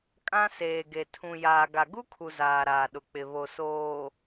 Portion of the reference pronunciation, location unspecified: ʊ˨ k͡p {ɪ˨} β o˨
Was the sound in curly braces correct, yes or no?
yes